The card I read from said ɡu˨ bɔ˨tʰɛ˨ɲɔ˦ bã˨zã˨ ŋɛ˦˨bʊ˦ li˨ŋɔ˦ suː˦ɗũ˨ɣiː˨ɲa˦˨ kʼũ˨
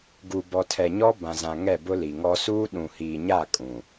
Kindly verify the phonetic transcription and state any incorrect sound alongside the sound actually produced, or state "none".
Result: ɣ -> h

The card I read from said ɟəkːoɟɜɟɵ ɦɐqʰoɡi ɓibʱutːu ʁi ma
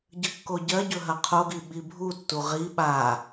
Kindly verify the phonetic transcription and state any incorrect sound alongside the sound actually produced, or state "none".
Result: m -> ɓ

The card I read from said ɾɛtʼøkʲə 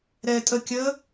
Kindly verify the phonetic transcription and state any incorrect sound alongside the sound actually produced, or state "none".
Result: ø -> ə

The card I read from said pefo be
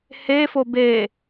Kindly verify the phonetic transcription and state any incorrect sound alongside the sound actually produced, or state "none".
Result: p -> h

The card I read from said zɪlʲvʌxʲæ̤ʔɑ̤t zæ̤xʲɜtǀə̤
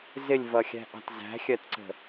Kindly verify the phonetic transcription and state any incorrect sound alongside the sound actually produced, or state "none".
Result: none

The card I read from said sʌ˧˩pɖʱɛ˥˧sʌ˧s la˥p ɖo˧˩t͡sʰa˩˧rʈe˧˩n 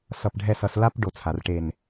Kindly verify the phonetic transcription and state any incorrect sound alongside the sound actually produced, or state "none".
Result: o˧˩ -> o˧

